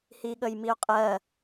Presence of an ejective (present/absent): present